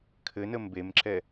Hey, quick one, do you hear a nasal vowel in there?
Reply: no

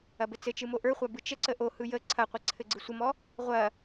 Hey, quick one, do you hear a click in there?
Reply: yes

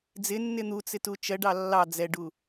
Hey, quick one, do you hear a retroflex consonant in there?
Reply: yes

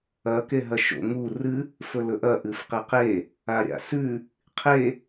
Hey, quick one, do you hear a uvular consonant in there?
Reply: yes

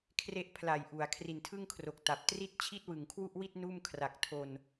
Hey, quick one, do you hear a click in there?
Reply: no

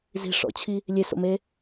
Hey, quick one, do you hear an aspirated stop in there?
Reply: yes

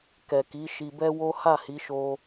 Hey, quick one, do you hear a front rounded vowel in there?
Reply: no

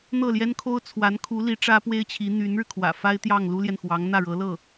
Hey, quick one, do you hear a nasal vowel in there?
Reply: no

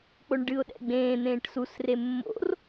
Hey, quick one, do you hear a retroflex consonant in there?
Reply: yes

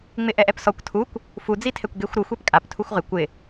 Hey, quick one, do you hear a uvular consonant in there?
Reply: yes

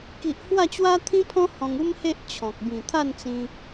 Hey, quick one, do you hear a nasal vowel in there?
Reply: yes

